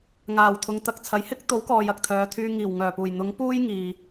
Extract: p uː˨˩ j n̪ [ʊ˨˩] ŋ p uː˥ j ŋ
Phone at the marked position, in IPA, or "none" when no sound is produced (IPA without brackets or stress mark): ʊ˨˥